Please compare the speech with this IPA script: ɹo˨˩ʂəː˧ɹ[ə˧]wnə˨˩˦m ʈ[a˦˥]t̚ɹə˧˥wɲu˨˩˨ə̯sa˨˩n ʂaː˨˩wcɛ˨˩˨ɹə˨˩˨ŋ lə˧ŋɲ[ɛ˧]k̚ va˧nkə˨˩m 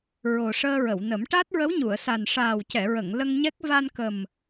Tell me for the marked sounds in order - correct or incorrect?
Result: incorrect: ə˨˩˨, correct, incorrect: ɛ˦˥

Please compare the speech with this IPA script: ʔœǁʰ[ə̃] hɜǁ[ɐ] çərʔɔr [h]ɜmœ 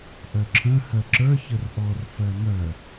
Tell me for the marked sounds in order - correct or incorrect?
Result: correct, incorrect: ə˞, incorrect: f

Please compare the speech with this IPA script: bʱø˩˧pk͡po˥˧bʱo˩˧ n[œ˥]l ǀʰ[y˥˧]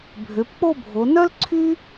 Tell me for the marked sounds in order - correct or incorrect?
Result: correct, incorrect: y˥

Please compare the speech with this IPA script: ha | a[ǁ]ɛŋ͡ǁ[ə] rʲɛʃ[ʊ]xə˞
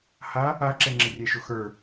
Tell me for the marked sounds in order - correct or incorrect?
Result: correct, correct, correct

